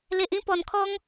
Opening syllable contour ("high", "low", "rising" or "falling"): low